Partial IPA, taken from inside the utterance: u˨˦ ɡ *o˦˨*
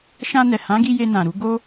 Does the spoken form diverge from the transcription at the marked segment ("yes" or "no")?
yes